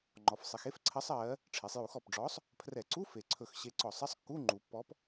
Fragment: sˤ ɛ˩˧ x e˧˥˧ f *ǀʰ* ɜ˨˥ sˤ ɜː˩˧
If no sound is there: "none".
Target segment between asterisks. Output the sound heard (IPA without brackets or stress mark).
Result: ǀʰ